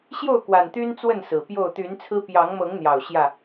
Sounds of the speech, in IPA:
ɕjo˥˨ʊ̯kwa˨˩nt̪y˦n t͡swə˥˨n sɹ̩˨˩pjo˥˨ʊ̯ t̪y˨˦nt͡sʰɹ̩˦ pjɑ˨˦ŋmɤ˨˦ŋn̪jɑ˨˩ʊ̯ ɕjä˥˨

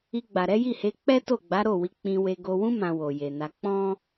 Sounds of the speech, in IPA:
i˧ɡ͡ba˨ɾɛ˨˦ ji˦˨he˨˦k͡pɛ˦ to˦˨ɡ͡ba˨˦ɾo˦˨wi˧ k͡pĩ˧we˧ɡo˧ wũ˦ mã˧wo˨je˨na˧ k͡pɔ̃˦

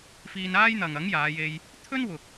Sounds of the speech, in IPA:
fiː˧n aː˥jn̪ɐ˨ŋ ɐ˨˥ŋjaː˨˧je˧j | t̪ʰɵ˥nwʊ˨k̚

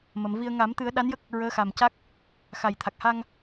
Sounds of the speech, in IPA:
mə˨˩˨mvi˧ə̯ ŋa˨˩˦mt̪ɨ˨˩˦ə̯ ɗa˧˥njə˦˥k̚ | ɹəː˧˥xa˨˩mca˦˥k̚ | xa˨˩jt̪ʰa˨˩k̚ ha˧ŋ

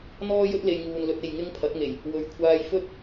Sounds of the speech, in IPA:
n̪ɔː˥jɵ˥t̚ le˧jŋuː˨nlɵ˧t̚e˨j ŋɪ˥ŋpʰɐ˨˥t̚ŋe˨˩j | wɵ˨˥ɥ kʷʰaː˧jfɵ˥t̚

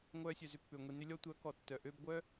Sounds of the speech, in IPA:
ŋʷœː˧sʲœ˨zʏ˧ pːʏː˨ ŋʷi˨nʏ˧ lʲɔ˧tʷœ˨˦ kɔ˨tːœ˨ ʔø˧bɡʷœ˦

